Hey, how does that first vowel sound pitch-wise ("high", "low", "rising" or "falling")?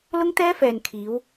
high